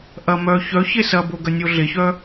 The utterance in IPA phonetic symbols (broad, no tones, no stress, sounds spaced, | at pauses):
ʔ ɐ m œ ç œ ç e s ɐ b o ɡ ɐ nʲ o ɮ e ç œ